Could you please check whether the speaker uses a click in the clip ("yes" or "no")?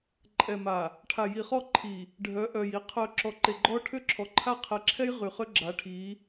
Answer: yes